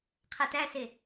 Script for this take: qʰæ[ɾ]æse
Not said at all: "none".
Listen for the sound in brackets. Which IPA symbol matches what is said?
t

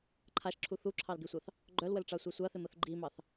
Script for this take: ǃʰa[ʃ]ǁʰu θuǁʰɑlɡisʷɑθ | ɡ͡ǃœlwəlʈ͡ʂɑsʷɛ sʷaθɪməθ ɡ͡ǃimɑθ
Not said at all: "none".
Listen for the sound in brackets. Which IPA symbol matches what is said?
ʃ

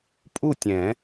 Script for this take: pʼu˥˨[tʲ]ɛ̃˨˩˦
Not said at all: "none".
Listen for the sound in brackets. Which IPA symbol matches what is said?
tʲ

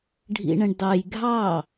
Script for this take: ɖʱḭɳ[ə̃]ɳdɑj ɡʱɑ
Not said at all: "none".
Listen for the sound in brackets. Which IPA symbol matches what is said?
ə̃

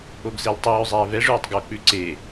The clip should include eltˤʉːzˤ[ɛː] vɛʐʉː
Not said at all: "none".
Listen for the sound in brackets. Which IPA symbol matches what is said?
ɛː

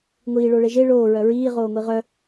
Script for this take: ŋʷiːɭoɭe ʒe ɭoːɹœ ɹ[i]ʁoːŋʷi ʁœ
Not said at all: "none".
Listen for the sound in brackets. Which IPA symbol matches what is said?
iː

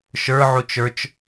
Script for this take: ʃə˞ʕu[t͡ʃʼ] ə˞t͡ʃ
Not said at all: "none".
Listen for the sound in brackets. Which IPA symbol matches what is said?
t͡ʃ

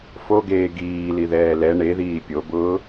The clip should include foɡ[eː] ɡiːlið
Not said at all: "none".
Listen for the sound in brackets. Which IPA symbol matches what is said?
eː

